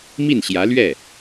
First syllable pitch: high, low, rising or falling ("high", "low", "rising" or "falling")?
falling